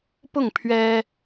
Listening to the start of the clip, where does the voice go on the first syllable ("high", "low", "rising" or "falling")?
falling